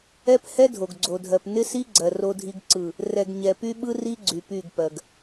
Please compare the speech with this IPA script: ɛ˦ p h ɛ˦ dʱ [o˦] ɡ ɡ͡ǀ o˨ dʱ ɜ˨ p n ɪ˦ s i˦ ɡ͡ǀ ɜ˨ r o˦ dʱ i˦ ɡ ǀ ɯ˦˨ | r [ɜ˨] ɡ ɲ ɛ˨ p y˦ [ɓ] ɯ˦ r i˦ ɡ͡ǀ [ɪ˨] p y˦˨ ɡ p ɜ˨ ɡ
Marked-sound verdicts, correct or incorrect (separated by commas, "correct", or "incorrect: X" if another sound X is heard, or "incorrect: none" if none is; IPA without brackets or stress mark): incorrect: o˨, incorrect: ɛ˨, correct, incorrect: y˨